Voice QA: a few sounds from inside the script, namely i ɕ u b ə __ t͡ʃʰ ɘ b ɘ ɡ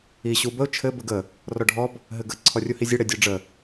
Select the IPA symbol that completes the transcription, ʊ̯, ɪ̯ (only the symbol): ʊ̯